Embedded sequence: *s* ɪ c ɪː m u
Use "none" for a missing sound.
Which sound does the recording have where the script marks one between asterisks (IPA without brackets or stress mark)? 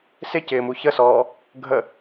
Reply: s